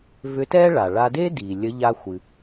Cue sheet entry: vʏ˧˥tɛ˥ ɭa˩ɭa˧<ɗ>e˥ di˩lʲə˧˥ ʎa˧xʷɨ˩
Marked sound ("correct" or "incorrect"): incorrect